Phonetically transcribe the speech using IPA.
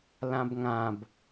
l ã b ŋ ã b

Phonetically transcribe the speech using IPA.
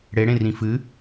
ɽ e ɽ ẽ r ĩ f ɨ

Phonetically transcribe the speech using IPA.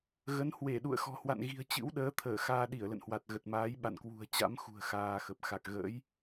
ɣ ə˨˦ n h w e˧˩ ɗ ṵ˧˨ ə̯ x ɔ̤˨˩ h w a̰˧˨ n ɣ i̤˨˩ ə̯ t͡ɕ ɨ̰˧˥ w ɗ əː˨˦ t̪ʰ əː˧˩ x aː˧ ɗ i˧˩ ə̯ l ə̰˧˨ n h w a˨˩ t̚ ɣ ə˨˩ t̚ m aː˨˦ j ɓ a̰˧˨ n k w ṳ˨˩ ə̯ t͡ɕ a̰˧˥ m x ṳ˨˩ ə̯ x aː˧ x ə˨˩ p̚ x a˨˩ k̚ ɣ ə̰ː˧˥ j

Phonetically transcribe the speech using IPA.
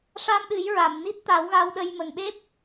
ʂ a˧ m ɗ ɨ˨˩˦ j ɹ a˨˩˨ m n i˦˥ t̚ t̪ a˨˩˦ w ɣ a˧ w ɗ ə˧ j m ə˨˩ ŋ ɓ e˦˥ p̚

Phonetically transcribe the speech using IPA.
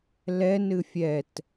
l ɛ n ɨ fʲ ɛ t

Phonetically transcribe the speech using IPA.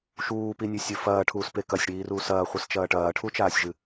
ʃ uː p i nʲ ʉ sʲ ɵ f ɐː ʈʰ uː s p e k ɐ sʲ ɽ iː r uː s ɐː χʷ ɨ s t͡ʃ ɐː ʈ ɐː ʈʰ u t͡ʃ aː sʲ ʒ ɨ

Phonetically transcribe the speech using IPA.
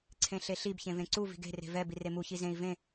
ǀʰ ẽ ɬ e ɬ i b ç ẽ v ẽ ǀ u v i̤ ɡ e̤ r e̤ v ɛ b i r e m u ç i z ẽ i̯ v ẽ

